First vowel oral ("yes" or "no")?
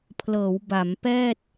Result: yes